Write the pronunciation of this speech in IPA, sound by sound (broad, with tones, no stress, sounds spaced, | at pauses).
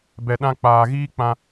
b ɛ˨ ɗ ã˧ k͡p aː˨ ɣ iː˦ k͡p ã˧